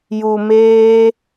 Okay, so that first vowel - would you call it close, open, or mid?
close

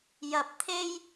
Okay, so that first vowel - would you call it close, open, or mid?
open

